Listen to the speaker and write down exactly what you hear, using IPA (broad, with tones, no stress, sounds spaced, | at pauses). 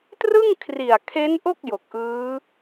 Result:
t r ɯ˥˩ ŋ kʰ r i˨˩ a̯ kʰ e˦˥ n ʔ o˥˩ k̚ j o˨˩ k̚ ʔ ɯː˦˥